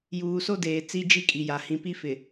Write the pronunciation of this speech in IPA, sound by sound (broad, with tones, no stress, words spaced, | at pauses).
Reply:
juː˨so˦deː˨ t͡si˦d͡ʒi˦kʼi˨ja˨ hĩ˨pi˦fɪ˨